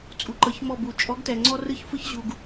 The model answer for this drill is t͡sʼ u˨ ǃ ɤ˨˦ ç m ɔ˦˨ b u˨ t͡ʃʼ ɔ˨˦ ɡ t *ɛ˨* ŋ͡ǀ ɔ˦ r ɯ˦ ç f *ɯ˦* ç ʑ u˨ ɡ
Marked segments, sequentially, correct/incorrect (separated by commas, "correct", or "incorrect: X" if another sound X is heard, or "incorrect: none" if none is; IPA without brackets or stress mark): correct, correct